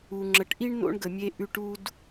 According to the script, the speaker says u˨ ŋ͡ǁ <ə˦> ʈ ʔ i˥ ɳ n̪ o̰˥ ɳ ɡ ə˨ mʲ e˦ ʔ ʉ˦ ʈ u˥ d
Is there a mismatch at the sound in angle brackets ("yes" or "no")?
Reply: yes